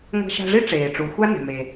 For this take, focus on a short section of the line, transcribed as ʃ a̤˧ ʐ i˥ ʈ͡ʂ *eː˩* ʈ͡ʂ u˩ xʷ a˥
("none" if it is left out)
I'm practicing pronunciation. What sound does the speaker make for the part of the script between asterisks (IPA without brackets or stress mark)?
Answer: eː˩